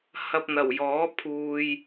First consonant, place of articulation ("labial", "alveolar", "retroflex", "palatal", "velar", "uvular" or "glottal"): glottal